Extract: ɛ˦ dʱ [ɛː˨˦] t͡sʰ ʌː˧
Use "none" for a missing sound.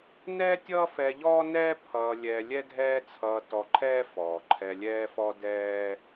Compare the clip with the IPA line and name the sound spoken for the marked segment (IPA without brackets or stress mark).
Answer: ɛː˦